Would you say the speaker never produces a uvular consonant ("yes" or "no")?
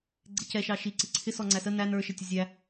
yes